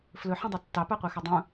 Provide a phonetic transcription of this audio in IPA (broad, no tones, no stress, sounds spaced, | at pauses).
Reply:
f l ɵ ħ ĩ dˤ i tː ɑ p ɑ qʷ ɛ x ɵ dˤ ũ